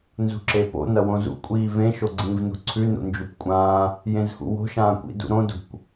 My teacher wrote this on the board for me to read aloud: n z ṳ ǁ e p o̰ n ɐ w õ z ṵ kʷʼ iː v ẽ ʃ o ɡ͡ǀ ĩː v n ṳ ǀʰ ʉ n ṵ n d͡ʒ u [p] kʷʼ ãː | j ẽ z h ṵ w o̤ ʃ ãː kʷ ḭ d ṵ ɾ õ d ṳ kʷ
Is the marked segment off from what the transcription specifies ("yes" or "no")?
no